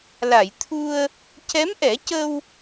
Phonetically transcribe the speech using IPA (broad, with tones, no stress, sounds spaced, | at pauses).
l a˨˩˨ j t̪ʰ u˧ ə̯ | c ɛ˧˥ m ʔ ɛ˨˩˦ c ə˧ w